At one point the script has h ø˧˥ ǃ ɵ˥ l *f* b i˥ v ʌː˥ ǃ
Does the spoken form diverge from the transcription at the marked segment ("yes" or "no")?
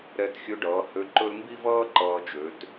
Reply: yes